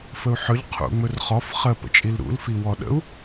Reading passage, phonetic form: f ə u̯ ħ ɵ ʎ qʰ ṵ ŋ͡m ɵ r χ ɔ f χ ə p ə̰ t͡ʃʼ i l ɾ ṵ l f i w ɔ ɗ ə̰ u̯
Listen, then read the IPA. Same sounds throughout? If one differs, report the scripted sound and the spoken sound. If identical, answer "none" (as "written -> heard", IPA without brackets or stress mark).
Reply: none